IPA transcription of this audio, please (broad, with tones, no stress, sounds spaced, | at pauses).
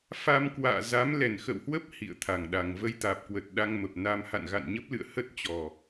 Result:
f a˧ m k w a̰ː˧˨ z a˨˦ m l ɛ˨˩ n x ə̰˧˨ w h w ə˦˥ p̚ h ḭ˧˨ ə̯ t̪ʰ a˨˩ ŋ ɗ a˨˩ ŋ v ə˧ j t̪ aː˨˩ p̚ k w ə˨˩ t̚ ɗ a˧ ŋ m ə˨˩ p̚ n a˧ m h a̰˧˨ n ɣ a̰˧˨ n ɲ ə˦˥ p̚ l ɨ̰˧˨ ə̯ h ə˦˥ t̚ t͡ɕ ɔ˨˩